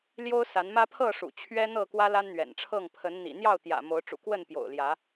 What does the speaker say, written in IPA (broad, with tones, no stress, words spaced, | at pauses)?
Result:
ljo˦ʊ̯sa˨˦nmä˦ pʰɤ˥˨ʂṵ˨˩ t͡ɕʰɥɛ˦ n̪ɤ˥˨kwä˦ la˦nn̪ɥɛ̰˨˩nʈ͡ʂʰɤ˥˨ŋ pʰə˨˦nn̪ḭ˨˩ n̪jɑ˥˨ʊ̯t̪jä̰˨˩mo˨˦ʊ̯ ʈ͡ʂṵ˨˩ kwə˥˨n pjo̰˨˩ʊ̯ljä˨˦